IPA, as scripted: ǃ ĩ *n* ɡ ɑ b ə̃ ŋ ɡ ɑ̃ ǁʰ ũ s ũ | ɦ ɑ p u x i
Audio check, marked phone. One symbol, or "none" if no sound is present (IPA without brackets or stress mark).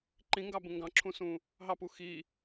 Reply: ŋ